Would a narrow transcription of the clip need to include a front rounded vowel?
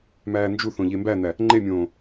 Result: no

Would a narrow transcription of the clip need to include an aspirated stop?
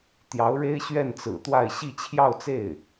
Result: yes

